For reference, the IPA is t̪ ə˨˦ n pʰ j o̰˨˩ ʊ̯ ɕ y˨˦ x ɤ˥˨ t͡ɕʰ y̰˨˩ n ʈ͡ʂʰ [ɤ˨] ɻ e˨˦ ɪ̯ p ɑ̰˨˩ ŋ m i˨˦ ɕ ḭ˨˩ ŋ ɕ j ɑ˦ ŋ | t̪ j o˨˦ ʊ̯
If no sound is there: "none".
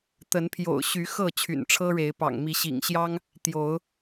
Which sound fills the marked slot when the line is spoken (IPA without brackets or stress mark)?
ɤ˦